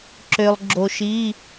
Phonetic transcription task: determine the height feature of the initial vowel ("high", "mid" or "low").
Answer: mid